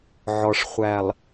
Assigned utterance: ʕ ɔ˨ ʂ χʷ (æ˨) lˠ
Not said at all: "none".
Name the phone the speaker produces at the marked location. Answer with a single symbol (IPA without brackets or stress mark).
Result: æ˨